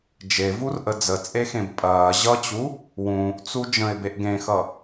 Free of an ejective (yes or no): no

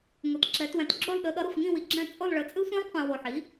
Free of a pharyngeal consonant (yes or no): no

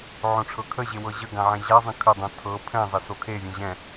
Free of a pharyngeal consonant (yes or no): no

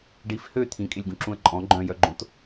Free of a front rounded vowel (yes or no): no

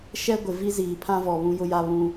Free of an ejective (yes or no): yes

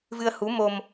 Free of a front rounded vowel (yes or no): yes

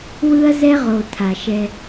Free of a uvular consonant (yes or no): no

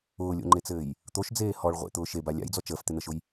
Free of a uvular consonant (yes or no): no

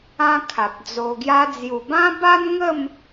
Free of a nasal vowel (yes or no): no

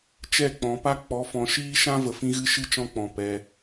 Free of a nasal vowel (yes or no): no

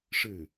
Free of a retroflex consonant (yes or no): no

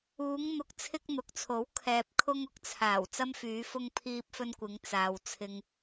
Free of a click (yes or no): yes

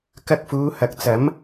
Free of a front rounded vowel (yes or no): yes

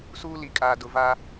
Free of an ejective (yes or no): no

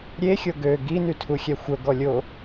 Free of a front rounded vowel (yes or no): no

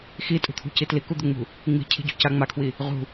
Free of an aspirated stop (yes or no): no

